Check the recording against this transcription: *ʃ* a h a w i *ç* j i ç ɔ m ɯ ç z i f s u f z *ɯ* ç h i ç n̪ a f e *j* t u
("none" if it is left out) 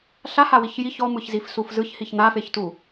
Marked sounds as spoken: ɬ, ç, ɯ, ç

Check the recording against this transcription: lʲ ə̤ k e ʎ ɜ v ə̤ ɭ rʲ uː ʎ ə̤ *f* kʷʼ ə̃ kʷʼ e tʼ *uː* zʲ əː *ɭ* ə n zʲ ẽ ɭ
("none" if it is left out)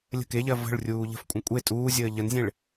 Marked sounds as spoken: f, uː, ʎ

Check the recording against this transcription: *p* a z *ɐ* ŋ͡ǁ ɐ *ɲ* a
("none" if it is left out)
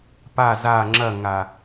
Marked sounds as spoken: p, a, ŋ

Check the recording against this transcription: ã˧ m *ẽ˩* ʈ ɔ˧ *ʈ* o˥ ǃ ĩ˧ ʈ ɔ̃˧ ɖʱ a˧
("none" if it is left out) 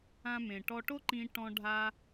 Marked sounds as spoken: ẽ˩, ʈ

